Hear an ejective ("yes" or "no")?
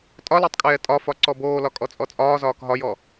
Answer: yes